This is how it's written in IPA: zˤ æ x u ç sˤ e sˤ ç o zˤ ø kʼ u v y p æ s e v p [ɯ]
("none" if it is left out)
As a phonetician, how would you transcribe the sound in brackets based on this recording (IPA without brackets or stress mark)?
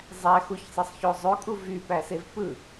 ɯ